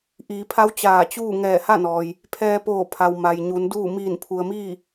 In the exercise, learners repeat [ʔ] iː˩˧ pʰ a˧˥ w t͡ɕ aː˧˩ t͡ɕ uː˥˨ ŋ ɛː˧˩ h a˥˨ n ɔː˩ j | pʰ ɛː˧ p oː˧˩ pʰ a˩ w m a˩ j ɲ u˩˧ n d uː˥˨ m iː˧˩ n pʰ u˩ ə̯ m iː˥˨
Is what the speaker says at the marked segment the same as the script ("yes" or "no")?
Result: yes